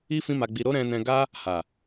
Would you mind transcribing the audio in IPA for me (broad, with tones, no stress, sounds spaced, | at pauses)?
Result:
i˦ f ĩ˦ m a˧ ɡ͡b i˧ ɾ o˦ ɾ ɛ̃˧ n ɛ̃˧ ɡ a˦ | h a˨